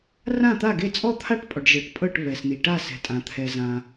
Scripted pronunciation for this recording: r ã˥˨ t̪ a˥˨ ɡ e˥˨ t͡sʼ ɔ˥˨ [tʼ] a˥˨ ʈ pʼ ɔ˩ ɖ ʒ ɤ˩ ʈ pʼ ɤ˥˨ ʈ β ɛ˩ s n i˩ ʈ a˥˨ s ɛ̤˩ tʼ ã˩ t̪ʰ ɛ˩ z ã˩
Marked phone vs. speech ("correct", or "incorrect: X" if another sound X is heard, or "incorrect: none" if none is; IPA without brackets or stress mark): incorrect: t̪ʰ